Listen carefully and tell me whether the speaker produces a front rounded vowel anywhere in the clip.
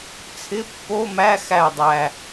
no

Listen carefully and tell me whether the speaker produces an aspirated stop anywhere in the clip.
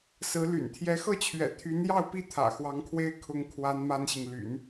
yes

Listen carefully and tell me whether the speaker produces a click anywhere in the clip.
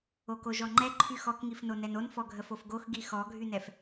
yes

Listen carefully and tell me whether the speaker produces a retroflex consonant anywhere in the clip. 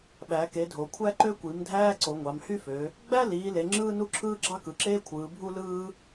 no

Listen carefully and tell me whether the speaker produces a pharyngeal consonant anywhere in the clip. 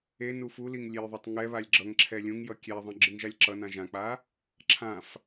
no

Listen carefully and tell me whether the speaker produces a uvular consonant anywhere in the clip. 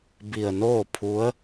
no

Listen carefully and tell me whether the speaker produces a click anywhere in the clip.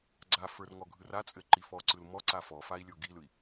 yes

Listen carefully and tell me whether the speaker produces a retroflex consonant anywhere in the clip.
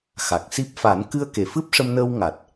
yes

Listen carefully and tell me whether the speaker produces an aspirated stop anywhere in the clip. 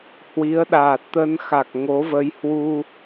no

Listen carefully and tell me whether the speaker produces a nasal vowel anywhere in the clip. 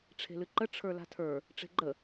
no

